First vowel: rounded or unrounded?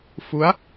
rounded